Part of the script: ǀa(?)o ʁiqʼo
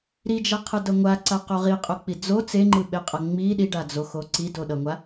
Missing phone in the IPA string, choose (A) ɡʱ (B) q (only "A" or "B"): B